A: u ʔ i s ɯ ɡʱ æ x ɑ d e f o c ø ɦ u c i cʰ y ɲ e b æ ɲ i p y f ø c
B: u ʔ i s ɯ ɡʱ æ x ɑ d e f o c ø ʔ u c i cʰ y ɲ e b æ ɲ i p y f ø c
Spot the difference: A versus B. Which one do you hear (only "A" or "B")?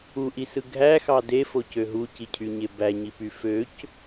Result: A